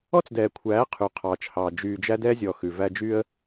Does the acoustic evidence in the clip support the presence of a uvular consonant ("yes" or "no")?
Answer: yes